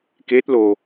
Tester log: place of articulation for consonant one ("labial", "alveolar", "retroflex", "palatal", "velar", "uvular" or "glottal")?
velar